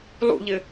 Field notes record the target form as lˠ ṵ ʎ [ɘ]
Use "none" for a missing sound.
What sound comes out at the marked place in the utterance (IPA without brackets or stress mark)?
ɘ